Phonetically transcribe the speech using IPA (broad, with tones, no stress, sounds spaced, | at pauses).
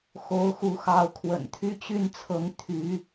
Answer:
x o˧˥ ʊ̯ x u˧˥ x ɑ˧˥ ʊ̯ kʰ w ə̰˨˩ n t̪ʰ y˥˧ t͡ɕ y˥˩ n t͡sʰ ɤ˧˥ ŋ t̪ʰ y˧˥